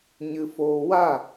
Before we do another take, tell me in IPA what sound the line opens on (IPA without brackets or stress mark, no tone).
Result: ɲ